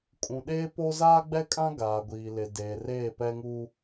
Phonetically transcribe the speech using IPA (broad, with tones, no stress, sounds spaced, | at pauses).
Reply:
kʼ ũ˨ ɗ eː˦ p o˦ z aː˦ ɡ͡b ɛ˦ kʼ ã˦ ɡ aː˨ ɡʷ iː˨ l ɪ˨ d eː˨ r eː˦˨ p ɛ˦ ŋ uː˦